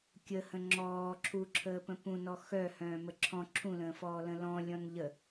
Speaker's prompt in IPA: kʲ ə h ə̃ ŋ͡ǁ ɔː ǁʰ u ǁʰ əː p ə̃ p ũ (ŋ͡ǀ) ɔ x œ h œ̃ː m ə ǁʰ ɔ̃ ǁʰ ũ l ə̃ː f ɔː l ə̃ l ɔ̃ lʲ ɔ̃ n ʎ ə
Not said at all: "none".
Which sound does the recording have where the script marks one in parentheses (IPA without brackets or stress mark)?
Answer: n